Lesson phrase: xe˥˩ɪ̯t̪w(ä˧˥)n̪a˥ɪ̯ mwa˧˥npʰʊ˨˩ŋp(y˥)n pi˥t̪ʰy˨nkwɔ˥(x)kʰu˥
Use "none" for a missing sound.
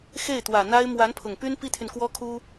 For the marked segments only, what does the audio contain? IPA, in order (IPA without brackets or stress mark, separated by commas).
ä˨˩, y˥, none